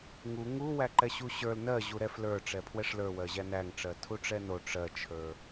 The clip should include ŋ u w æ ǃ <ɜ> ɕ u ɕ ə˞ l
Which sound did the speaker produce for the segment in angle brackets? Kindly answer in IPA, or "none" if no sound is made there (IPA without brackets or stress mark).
ɛ